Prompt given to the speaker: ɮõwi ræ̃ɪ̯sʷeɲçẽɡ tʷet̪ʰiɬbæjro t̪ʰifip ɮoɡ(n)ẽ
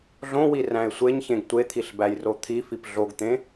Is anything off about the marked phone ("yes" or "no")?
yes